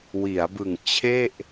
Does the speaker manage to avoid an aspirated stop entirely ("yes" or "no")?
no